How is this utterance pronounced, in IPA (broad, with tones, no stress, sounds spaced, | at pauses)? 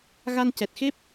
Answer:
ɣ a˧ n c ɛ˨˩ t̚ x e˦˥ p̚